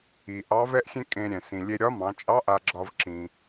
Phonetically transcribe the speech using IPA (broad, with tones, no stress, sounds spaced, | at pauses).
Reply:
i˩ ʔ ɑ˧˥ v ɛ˥ ʔ xʲ ẽ˥ kʼ ẽ˧ ɾʲ ɛ̃˩ s ĩ˩ lʲ e˧ ɾʲ ɒ˧˥ m ɑ̃˩˧ t͡ʃʼ ɑ˧˥ ʔ a˧ ɡ͡ǁ ɒ˧ v ǁ ĩ˩